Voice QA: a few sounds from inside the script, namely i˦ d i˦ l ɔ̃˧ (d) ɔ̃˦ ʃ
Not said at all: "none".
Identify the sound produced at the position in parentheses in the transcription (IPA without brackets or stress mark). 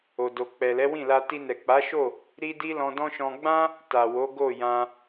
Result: d